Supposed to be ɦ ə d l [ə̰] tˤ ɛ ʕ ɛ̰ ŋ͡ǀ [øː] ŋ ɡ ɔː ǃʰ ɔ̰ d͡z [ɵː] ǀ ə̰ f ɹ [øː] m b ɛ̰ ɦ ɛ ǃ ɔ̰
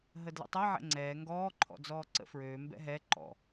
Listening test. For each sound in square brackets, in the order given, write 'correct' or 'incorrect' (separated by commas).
correct, incorrect, incorrect, correct